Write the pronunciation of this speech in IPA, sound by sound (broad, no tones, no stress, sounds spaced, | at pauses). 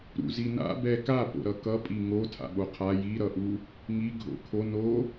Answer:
ɾ ṵ z i n a̰ b ɛ k a p o̰ ɾ ʌ k ʌ pʼ i ŋ o tʰ a̰ ɓ o qʰ a j i ɾ ʌ ʔ u | ŋ i ɡʱ o̰ kʰ o n o